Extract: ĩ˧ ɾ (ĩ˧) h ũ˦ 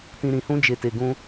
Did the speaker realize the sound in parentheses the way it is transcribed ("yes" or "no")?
yes